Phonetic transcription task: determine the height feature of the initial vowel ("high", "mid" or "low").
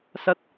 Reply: low